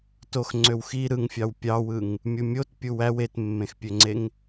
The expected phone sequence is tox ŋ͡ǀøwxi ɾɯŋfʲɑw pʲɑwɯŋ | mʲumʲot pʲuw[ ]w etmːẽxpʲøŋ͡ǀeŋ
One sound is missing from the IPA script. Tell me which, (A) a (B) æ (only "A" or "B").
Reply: B